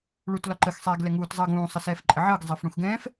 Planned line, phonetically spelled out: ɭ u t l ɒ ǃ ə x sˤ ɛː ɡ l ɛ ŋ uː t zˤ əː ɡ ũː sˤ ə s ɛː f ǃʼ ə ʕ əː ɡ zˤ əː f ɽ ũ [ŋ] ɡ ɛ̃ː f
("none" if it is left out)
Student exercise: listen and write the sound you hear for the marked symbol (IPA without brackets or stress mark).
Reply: x